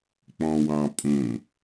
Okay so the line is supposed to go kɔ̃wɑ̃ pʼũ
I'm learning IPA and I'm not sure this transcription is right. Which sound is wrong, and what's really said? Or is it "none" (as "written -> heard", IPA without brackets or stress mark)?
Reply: k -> k͡p